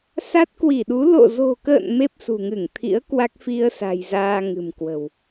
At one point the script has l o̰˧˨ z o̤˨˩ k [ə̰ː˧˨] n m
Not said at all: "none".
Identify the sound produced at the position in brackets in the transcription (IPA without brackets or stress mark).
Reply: ə̰ː˧˨